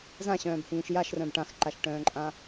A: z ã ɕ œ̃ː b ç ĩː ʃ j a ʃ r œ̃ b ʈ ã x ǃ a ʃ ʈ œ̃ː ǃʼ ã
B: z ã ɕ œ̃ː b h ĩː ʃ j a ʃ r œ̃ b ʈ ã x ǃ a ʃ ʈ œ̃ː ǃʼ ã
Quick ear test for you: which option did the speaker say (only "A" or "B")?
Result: B